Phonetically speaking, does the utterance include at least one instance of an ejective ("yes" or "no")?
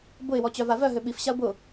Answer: no